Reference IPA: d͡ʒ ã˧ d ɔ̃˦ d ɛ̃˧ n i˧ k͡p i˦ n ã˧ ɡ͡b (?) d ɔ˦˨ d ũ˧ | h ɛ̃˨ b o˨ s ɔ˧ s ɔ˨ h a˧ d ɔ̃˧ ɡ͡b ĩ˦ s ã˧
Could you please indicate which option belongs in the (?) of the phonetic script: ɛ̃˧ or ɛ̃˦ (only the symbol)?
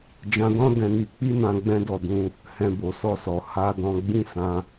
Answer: ɛ̃˦